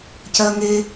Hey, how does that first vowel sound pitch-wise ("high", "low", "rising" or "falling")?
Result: high